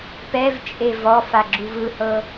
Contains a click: yes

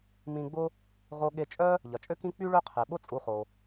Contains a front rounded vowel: yes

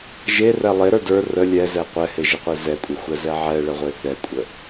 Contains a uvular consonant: yes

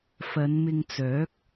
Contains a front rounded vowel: yes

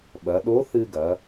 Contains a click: no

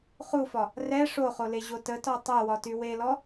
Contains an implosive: no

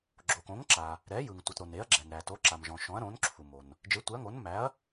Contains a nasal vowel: yes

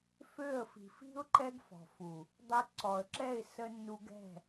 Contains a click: yes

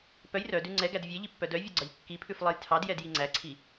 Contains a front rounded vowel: yes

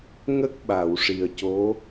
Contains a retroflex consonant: yes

